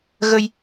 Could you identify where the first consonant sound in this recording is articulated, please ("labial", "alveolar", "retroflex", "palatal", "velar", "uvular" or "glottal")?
velar